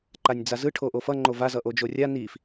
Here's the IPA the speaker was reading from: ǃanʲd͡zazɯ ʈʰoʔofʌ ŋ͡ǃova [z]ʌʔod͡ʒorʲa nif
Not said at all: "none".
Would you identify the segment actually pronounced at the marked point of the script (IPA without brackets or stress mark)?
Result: z